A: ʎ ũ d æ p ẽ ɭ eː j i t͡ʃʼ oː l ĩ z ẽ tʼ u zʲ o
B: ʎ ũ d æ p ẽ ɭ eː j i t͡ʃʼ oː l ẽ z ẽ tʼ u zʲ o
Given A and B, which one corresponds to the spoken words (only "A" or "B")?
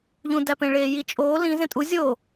A